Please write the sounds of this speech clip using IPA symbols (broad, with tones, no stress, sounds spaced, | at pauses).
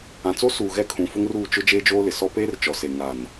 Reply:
ã˨ t͡s o˦ s uː˨ ɣ ɛ˦ kʰ ũ˨ f ʊ˦ ŋ r uː˦˨ t͡ʃ ʊ˦ d͡ʒ eː˦ d͡ʒ oː˦ l ɪ˨ s ɔ˦ p eː˦ r t͡ʃ ɔ˨ s e˨ ŋ a˨ n